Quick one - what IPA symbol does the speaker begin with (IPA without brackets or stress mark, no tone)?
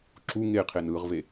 ǁ